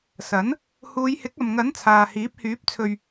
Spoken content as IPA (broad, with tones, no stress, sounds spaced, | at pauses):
s ɐ˨˥ n | h uː˨˧ j h ɪ˨˥ k̚ ɐ˨ m ŋ ɐ˨˥ n t͡sʰ aː˨ h iː˨˥ p̚ h yː˨˥ p̚ t͡sʰ ɵ˨ ɥ